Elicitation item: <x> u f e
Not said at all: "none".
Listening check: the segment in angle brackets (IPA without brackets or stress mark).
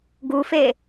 ɡ